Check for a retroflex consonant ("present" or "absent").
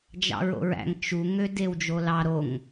absent